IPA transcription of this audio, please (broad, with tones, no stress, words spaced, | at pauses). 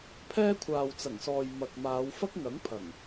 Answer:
pʰɛː˥kʷʰaː˨wt͡sɐ˨˩ŋsɔː˨j mɐ˨k̚ maː˨˧wfɐ˥k̚ŋɐ˨˥ŋ pʰɐ˨˩ŋ